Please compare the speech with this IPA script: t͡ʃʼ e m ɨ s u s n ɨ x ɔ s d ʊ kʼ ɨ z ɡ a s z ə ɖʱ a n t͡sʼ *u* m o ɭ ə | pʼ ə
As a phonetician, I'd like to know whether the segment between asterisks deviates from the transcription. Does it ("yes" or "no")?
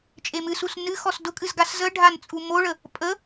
no